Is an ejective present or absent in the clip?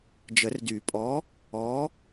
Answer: present